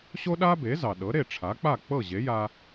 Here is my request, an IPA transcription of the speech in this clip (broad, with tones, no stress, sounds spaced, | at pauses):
ɕ o˥ ɗ a˥ b e˩˥ z ɑ˩ ɗ ɤ˩˥ ɾ e˥˩ ʈ͡ʂʰ a˩˥ k͡p a˥˩ k͡p ɤ˥˩ ʑ e˩˥ j a˧